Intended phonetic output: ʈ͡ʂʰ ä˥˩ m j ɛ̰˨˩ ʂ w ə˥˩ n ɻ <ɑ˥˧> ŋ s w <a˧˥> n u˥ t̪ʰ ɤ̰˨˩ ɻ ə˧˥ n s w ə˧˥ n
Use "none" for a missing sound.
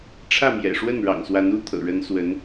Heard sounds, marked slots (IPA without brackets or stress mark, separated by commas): ɑ̰˨˩, a˧˥